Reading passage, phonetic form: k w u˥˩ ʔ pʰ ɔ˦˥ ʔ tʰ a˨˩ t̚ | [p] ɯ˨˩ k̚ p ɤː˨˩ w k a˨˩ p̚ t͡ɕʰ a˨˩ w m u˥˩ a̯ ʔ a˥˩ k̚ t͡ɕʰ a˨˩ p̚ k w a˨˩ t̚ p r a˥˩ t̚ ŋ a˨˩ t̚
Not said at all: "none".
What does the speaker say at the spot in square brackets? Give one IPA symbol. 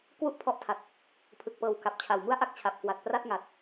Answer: pʰ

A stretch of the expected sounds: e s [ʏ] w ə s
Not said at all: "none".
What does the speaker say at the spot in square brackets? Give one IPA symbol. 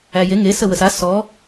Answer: ə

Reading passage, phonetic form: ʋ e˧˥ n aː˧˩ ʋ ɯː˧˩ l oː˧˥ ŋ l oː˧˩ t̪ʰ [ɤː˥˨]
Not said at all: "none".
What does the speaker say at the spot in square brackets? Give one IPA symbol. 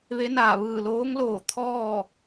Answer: ɔː˥˨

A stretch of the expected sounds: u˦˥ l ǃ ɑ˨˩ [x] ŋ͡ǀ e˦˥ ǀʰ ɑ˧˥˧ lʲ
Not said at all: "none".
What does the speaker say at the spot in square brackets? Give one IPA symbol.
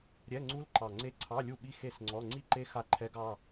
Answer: none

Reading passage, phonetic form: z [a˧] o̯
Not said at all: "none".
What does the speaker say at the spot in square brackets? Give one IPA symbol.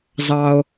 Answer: ɑ˧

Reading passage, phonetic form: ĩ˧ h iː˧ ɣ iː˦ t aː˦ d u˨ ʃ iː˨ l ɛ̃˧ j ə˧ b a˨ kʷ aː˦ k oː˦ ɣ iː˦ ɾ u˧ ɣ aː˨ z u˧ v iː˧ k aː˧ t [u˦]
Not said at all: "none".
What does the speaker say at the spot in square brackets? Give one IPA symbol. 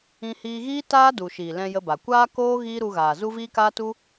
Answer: u˦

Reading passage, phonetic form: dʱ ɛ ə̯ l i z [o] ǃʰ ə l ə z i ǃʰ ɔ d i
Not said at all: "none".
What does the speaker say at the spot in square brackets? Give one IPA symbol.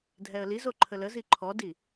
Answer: o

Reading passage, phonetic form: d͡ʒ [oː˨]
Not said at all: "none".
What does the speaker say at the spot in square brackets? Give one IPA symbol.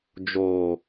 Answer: oː˨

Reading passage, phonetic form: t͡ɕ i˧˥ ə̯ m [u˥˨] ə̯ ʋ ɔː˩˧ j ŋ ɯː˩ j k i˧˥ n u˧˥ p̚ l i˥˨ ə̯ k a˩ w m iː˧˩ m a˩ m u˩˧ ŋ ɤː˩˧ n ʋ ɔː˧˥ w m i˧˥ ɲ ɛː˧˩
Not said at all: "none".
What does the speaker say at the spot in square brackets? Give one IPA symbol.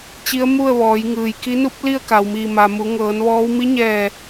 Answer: u˥˨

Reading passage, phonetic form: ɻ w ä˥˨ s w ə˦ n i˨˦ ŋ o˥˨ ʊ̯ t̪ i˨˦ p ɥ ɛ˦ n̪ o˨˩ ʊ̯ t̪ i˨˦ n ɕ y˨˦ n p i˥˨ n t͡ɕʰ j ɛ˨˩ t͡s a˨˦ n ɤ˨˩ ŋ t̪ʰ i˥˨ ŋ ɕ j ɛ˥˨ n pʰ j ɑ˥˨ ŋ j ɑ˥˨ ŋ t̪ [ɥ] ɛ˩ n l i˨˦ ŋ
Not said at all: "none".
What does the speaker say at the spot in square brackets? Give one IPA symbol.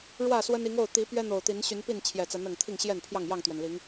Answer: ɥ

